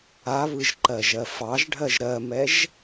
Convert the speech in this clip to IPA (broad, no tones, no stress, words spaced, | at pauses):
aβɯʒǃɜʒɜ fɑʒɖʱɜʒ ɾɜmɛʒ